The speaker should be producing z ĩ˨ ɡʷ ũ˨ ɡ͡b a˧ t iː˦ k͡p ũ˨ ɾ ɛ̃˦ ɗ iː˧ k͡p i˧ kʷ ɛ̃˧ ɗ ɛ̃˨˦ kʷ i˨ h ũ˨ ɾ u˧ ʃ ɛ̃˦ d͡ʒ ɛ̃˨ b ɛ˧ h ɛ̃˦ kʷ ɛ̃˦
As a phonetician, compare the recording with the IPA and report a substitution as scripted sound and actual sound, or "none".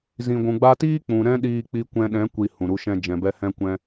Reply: none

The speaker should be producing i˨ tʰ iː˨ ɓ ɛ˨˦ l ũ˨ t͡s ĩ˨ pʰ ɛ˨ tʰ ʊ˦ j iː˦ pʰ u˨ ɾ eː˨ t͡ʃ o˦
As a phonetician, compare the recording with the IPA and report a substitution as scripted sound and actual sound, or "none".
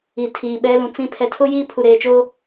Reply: none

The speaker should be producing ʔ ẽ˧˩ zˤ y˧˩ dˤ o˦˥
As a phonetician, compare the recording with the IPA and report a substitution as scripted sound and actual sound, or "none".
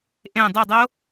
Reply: zˤ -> dˤ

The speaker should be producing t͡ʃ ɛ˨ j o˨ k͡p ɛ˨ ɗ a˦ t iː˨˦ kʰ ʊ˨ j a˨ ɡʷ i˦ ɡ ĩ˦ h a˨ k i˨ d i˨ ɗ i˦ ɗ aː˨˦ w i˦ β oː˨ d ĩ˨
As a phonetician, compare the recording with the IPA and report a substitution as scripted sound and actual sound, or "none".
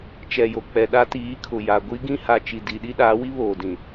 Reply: k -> t͡ʃ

